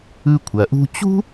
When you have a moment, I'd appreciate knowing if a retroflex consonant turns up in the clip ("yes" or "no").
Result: no